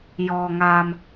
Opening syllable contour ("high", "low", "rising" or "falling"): low